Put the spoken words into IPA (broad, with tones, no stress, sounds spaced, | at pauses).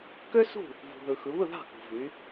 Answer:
k ø˥ s ṳ˥˩ | v ṳ˩ ð ɯ˩ x ɯ˩˧ β ɯ˥˩ ð ɑ̤˥˩ k ṳ˩ v y˩˧